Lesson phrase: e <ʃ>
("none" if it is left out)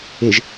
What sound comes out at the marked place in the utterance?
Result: ʒ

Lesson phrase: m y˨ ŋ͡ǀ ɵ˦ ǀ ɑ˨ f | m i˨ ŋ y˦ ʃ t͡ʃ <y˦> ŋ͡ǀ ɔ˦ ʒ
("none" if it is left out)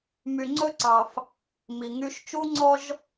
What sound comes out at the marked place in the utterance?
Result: u˦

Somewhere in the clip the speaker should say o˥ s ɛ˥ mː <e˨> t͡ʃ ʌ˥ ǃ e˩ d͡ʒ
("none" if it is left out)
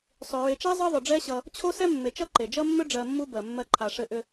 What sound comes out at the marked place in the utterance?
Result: e˨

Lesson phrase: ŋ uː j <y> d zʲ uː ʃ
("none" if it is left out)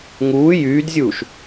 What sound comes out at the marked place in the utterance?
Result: yː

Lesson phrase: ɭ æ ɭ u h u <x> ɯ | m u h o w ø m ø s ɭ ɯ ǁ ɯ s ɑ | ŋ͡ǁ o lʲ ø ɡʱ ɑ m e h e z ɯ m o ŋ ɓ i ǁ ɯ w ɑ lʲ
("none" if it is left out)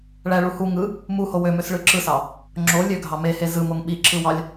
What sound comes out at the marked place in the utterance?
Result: ŋ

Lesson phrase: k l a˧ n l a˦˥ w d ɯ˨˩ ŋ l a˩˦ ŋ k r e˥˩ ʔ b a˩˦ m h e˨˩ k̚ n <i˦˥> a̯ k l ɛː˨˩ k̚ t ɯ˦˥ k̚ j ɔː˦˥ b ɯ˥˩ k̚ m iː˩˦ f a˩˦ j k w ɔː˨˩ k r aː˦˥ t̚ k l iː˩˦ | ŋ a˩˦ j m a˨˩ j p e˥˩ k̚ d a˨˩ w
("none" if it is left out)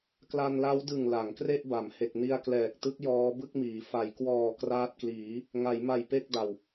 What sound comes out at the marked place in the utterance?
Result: i˧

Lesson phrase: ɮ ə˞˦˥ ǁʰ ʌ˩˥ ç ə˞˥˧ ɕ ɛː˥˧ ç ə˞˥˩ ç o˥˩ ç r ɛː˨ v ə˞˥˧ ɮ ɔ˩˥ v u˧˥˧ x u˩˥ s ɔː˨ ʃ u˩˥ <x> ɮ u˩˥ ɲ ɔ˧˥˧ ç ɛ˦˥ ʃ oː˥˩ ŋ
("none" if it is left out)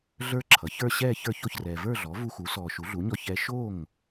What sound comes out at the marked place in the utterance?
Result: none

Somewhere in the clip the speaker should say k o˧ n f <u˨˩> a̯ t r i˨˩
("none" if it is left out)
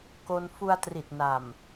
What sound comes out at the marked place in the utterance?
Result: u˧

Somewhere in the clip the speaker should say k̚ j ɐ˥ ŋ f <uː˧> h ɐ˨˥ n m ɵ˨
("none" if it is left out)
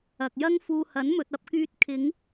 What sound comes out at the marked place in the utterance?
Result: uː˧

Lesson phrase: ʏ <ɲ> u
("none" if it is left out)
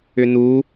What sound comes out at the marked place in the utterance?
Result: n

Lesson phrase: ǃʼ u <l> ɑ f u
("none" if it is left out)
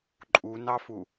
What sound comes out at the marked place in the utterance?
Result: n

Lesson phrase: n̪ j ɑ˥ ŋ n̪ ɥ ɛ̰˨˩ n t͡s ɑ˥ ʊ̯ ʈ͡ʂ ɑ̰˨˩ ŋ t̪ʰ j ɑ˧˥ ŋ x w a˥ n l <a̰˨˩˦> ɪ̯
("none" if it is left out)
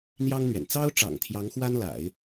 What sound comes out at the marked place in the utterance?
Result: a̰˨˩˦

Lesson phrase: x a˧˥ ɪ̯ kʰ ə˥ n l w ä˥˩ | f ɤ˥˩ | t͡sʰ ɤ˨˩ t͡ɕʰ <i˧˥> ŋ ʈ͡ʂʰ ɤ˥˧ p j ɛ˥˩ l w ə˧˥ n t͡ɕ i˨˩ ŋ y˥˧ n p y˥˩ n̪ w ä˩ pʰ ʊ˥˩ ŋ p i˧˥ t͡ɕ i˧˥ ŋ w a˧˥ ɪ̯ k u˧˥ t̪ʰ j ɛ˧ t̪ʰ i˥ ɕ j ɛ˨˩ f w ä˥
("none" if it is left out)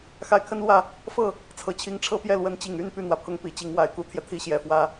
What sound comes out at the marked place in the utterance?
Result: i˧˥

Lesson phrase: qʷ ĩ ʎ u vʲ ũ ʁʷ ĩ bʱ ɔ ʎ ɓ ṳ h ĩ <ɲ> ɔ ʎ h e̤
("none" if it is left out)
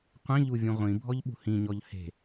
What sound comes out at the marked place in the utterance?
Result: ɲ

